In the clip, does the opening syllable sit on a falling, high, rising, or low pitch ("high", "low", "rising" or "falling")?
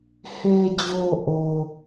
low